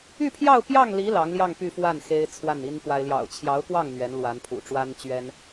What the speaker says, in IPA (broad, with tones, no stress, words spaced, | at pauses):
y˥˧pʰjɑ˥˧ʊ̯ pjɑ˥˩ŋli˧˥ lɑ˧˥ŋljɑ˥˧ŋ py˥˧fwa˥˩n xe˥ɪ̯t͡sʰwa˥˩ni˥npwa˥ɪ̯ ljɑ̰˨˩ʊ̯t͡ɕʰjɑ˧˥ʊ̯kwɑ˥˩ŋ n̪ɥɛ˧˥nlwa˧˥n pʰṵ˨˩ʈ͡ʂwa˥n t͡ɕɥɛ˥n